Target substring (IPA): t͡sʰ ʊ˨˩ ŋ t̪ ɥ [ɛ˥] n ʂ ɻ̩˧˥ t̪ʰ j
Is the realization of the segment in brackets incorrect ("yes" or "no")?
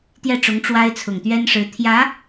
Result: no